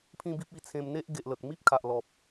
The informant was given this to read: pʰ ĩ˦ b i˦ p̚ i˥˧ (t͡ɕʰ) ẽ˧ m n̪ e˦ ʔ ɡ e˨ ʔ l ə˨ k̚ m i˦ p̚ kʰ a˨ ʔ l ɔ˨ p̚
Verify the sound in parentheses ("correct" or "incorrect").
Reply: incorrect